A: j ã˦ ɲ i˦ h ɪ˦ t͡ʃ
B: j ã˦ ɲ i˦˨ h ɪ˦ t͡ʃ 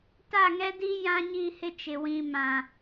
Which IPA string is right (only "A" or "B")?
B